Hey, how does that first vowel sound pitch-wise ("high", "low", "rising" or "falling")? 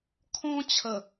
high